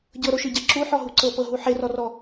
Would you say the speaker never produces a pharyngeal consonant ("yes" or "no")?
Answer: no